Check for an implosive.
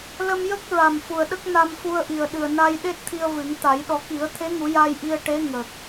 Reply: present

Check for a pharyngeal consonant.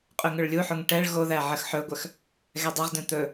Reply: present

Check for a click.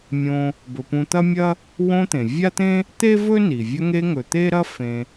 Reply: absent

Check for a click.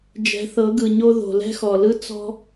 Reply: absent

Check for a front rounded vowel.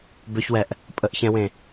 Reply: present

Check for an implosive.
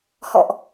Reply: absent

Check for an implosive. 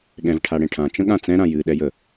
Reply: present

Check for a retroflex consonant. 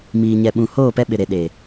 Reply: absent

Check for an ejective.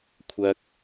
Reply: absent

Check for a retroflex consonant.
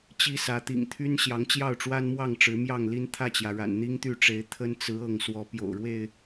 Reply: present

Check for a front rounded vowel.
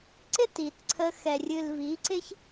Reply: absent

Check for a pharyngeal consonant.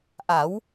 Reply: absent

